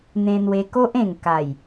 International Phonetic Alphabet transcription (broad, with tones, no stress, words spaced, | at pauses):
n̪ẽ˧n̪we˧ ko˦ʔẽ˨˩ŋ ka˨˩j